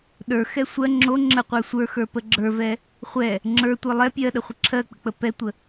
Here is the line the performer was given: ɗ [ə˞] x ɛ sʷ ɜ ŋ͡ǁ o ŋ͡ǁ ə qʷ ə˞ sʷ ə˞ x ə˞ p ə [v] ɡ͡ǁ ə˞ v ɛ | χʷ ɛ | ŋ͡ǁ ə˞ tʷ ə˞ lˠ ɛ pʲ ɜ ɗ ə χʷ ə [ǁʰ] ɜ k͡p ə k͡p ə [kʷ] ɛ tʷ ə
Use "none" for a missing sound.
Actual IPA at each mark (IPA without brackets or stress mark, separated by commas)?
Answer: ə˞, none, ǁʰ, p